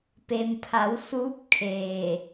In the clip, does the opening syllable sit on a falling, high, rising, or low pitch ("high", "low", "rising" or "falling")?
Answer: low